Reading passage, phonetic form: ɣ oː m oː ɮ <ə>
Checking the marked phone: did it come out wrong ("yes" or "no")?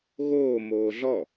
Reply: yes